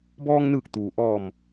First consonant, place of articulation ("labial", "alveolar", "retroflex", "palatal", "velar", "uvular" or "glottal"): labial